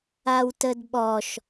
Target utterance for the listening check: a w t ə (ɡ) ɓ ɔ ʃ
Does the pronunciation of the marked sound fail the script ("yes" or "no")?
yes